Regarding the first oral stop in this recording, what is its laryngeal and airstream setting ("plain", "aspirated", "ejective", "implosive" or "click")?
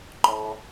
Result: click